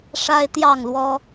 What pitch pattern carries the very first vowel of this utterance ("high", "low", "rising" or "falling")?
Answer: high